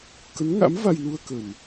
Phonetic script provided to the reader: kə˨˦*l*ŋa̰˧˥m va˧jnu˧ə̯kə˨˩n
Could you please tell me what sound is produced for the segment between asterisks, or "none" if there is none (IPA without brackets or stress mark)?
n